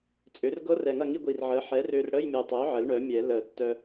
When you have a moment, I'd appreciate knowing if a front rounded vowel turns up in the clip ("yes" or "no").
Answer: yes